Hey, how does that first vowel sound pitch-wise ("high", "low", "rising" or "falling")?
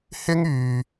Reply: high